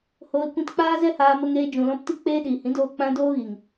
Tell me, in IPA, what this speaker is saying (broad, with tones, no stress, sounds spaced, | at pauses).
h oː˧ l kʷ ĩ˧ t k͡p aː˦ z ɛ˦ h aː˧ m ə˧ ŋ eː˧ d͡ʒ ũ˨ l ɔ̃˧ p t i˦ k͡p eː˧ ɗ iː˨ h ĩ˨˦ d oː˧ k͡p ã˧ d oː˦ ɣ i˨ ŋ